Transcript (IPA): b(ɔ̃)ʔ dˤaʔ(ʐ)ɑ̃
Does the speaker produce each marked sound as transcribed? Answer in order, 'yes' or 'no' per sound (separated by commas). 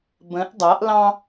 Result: no, no